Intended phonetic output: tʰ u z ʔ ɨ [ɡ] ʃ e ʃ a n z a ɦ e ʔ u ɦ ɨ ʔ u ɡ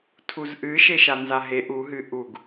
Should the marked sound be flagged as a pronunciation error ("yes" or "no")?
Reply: yes